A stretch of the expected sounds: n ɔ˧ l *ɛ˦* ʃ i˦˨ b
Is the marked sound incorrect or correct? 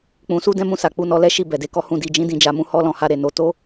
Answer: correct